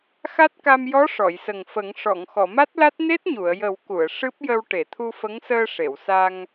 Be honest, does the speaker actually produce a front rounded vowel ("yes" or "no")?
no